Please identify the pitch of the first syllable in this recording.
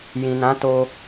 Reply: low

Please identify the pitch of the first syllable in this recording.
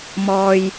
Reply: low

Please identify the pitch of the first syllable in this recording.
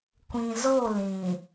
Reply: low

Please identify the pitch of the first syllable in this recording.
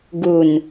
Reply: low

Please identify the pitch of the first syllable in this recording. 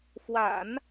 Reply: low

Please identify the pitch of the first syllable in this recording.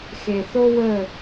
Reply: low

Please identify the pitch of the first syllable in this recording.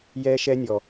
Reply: high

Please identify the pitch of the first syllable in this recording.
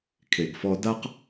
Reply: low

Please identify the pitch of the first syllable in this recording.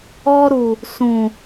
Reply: high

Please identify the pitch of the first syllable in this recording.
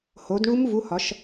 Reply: rising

